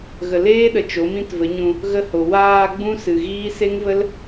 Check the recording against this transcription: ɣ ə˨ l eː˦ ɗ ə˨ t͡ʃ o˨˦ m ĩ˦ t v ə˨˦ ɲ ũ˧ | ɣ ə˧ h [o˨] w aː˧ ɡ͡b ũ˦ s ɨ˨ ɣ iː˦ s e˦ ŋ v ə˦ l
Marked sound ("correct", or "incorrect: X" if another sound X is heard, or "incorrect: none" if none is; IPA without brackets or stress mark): correct